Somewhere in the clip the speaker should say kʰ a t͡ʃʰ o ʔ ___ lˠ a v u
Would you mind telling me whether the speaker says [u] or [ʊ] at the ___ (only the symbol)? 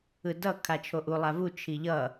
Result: u